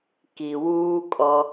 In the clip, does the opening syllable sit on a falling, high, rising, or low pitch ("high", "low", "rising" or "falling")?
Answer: low